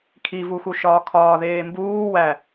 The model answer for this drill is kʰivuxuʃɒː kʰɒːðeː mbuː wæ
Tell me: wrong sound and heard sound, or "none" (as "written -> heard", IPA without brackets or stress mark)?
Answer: none